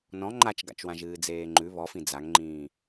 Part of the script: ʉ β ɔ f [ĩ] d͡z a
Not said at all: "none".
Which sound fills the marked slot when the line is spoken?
ĩ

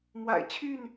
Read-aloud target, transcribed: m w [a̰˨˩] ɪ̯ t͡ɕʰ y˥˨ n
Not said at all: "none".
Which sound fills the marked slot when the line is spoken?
a̰˨˩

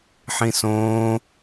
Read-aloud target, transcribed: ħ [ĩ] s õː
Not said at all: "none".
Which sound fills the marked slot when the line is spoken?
ĩ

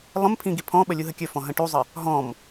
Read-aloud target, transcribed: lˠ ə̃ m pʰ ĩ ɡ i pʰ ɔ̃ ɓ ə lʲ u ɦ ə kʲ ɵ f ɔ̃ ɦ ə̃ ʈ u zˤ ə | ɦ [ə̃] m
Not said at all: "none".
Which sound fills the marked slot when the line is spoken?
ɔ̃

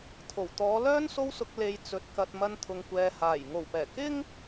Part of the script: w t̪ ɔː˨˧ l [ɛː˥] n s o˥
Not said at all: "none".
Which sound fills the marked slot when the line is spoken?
œː˥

